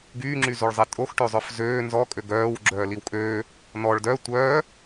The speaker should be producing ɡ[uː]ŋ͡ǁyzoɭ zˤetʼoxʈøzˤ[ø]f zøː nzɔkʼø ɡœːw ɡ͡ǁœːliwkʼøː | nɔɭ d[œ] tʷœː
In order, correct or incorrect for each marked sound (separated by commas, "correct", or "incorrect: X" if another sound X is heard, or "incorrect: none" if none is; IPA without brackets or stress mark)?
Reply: incorrect: yː, incorrect: œ, correct